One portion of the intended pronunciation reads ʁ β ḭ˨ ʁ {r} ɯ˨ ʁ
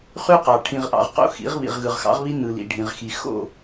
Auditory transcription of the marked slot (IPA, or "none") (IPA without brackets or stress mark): ɣ